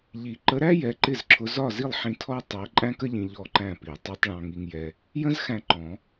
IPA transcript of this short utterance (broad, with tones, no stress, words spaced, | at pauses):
ʎi˨˩˦ ǃə˧˥ɾæ˥ jɛ˧˥ǃɪ˥˨zǁʰʊ˧˥ zɒ˥˨zi˥˨lˠħĩ˧ tʰɔ˥ tˤɜ˧˥ ǃʼæ̃˥kə˥ʎĩ˧ ʎɔ˥˨ǃæ̃˥˨pi˨˩˦ tˤɜ˧˥tˤɭɑ̃˧ŋi˧ŋjɛ˧ | jə̃˥zxæ̃˧ ǃɔ̃˨˩˦